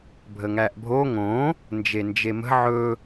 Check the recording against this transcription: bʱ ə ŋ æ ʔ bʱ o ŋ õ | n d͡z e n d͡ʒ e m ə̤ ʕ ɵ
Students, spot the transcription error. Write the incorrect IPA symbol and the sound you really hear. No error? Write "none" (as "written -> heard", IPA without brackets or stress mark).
d͡z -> d͡ʒ